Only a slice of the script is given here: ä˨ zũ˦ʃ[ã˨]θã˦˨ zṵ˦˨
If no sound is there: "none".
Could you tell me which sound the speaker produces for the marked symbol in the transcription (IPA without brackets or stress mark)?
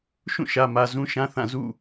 ã˦